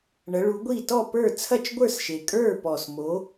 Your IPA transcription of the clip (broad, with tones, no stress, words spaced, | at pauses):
ɳɐ˨˦ɭu˨˦ɡʷi˥˨ tɔ˥˨pə˞˥˨ t͡sʰɐ˥˨t͡ʃɡʷə˞˥˨sʃe˨˩ kʼə˞˥˨pɔ˨˩smo˨˦